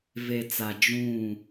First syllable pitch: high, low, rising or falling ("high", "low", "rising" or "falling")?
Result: low